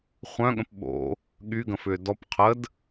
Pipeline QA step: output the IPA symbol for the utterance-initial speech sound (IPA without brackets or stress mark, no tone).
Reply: χʷ